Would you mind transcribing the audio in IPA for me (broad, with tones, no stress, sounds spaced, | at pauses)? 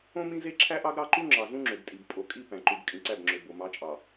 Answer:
õ˦ m ĩ˦ z e˦ ǁʰ æ˦ ʔ ɑ˦ ɡ ɾ ɑ˦ ǃ u˦ ŋ͡ǁ ɑ˨ z ũ˦ ŋ͡ǁ ø˨ ɡ tʼ i˨ b pʼ o˨ kʼ i˦˨ p æ̃˨ ǃ u˨ b kʼ ĩ˨ ǀ æ˦˨ b ŋ͡ǁ ø˨ b o˨ m ɑ˨˦ t͡ʃʼ ɑ˨